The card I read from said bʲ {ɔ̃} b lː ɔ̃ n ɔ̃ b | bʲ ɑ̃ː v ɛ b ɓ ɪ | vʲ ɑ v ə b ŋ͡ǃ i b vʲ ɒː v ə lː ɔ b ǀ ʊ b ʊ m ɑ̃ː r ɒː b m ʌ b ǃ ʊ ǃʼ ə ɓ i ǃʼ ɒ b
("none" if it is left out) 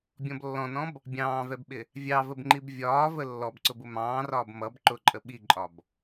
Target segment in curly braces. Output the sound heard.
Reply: ɔ̃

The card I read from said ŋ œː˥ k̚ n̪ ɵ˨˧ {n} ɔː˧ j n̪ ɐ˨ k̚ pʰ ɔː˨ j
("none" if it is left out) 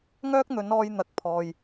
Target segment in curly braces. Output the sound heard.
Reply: n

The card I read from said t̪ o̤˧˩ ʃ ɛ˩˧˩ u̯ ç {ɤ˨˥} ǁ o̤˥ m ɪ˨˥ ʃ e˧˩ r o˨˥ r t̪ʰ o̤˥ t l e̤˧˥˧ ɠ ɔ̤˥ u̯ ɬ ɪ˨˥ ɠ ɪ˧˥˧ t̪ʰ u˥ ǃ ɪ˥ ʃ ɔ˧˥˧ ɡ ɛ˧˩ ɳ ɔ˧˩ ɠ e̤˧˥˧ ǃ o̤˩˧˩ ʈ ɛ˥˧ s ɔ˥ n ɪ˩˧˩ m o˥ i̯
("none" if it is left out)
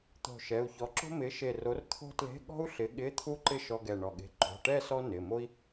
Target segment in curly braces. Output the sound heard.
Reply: ɔ˨˥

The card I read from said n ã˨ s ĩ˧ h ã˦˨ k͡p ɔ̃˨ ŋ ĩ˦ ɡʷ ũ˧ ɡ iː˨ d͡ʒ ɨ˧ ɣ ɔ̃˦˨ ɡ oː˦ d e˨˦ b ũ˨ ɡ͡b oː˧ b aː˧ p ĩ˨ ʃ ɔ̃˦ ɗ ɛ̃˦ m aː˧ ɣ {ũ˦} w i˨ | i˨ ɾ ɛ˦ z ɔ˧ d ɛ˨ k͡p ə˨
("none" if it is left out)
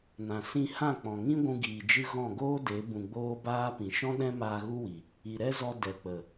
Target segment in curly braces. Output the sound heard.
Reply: u˦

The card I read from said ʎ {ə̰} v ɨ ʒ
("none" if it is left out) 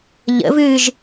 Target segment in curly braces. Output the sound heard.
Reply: ə̰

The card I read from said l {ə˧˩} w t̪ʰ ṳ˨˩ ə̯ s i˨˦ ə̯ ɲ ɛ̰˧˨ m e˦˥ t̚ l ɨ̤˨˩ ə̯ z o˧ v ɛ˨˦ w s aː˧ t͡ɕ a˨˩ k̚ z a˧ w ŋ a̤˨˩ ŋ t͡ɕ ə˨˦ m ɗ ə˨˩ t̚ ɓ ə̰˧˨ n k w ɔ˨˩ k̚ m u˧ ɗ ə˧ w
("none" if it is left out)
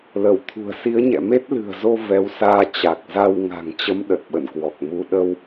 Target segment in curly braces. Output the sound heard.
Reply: ə˧˩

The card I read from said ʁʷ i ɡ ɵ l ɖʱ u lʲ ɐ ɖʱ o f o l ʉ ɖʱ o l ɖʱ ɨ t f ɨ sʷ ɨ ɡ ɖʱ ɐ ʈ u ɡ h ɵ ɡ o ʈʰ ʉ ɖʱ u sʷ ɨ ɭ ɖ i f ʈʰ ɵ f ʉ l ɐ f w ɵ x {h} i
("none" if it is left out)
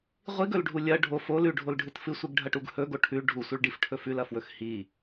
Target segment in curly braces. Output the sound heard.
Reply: h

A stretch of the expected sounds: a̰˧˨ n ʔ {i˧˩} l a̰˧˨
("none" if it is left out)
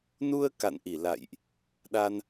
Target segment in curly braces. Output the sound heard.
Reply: i˧˩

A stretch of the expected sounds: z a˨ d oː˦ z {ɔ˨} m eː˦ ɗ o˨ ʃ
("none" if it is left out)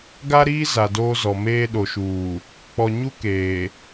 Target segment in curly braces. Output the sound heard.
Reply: ɔ˨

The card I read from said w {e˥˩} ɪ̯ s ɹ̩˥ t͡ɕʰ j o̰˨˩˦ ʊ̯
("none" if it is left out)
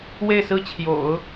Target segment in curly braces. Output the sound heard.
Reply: e˥˩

